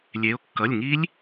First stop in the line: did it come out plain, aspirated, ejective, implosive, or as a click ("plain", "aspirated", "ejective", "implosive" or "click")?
plain